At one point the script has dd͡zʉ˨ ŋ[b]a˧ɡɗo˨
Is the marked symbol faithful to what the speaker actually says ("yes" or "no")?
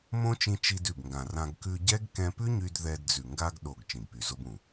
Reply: no